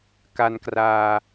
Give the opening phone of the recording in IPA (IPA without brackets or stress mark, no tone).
k